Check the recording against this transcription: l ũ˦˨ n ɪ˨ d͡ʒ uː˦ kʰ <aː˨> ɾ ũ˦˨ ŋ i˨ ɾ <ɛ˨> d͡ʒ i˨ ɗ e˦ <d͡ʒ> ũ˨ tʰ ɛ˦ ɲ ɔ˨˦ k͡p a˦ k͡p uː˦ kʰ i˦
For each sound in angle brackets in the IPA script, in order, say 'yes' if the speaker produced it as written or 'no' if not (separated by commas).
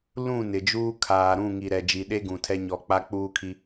yes, yes, no